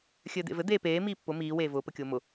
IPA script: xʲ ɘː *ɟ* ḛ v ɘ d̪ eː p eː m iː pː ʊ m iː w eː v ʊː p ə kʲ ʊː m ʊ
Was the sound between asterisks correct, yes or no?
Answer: no